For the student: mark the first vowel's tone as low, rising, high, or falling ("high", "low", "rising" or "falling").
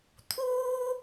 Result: high